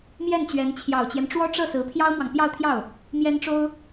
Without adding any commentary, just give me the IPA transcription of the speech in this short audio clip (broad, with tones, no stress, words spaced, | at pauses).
mjɛ˥˩nt͡ɕɥɛ˧˥n t͡ɕʰjɑ˨˩ʊ̯t͡ɕjɛ˦nʈ͡ʂwɔ˥ ʈ͡ʂɤ˥˩sɹ̩˧˥ pʰjɑ˥ʊ̯mwɑ˨ŋ pjɑ˥˧ʊ̯t̪ʰjɑ˥˩ʊ̯ | mjɛ˥nʈ͡ʂo˥ʊ̯